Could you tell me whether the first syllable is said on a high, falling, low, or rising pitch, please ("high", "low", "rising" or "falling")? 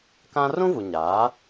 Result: high